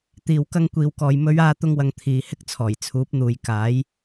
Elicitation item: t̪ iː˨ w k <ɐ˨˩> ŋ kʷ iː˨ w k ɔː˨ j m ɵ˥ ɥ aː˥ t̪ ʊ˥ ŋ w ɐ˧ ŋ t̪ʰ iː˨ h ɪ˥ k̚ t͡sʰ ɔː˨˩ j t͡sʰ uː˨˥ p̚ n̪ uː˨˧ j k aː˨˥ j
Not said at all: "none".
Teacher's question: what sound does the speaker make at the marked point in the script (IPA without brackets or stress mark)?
ɐ˧